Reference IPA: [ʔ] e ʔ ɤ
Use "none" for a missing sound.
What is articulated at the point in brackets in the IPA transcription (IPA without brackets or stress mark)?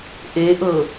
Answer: ʔ